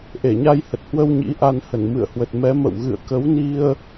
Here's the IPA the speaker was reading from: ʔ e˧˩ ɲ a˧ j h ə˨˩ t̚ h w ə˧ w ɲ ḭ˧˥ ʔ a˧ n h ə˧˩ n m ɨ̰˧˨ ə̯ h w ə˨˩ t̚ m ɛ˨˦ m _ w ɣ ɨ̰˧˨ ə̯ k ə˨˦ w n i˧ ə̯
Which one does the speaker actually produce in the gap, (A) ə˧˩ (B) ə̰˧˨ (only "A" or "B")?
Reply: B